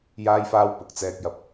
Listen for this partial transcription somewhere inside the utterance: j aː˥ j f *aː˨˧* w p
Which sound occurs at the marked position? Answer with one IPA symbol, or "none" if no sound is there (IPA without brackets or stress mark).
aː˥